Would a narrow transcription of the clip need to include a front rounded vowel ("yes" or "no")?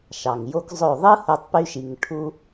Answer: yes